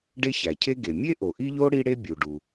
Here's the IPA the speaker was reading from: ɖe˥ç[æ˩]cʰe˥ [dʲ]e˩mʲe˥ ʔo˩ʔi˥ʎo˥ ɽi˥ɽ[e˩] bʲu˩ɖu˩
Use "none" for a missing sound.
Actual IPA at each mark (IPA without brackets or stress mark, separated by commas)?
æ˩, ɡ, e˥